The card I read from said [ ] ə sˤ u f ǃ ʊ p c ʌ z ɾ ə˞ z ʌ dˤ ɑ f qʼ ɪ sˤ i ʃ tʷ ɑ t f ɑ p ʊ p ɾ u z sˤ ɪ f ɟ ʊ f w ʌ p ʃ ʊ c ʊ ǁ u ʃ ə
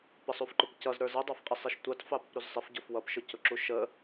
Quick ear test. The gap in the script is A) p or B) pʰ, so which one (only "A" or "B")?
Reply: A